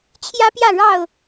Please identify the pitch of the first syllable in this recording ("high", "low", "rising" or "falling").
high